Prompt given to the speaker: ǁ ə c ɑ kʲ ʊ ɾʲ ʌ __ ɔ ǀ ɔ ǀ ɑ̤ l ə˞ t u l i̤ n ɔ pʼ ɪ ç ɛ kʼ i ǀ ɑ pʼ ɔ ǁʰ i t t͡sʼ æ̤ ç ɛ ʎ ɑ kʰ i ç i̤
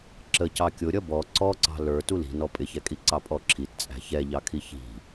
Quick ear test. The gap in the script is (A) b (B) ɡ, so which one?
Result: A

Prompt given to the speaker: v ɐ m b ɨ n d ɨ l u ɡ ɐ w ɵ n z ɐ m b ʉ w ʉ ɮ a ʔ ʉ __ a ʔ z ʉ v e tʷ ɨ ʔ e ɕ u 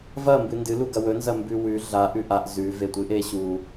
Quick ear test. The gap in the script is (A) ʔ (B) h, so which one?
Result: A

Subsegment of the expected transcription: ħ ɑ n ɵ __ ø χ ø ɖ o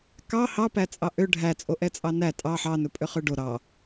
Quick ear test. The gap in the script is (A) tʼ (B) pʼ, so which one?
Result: B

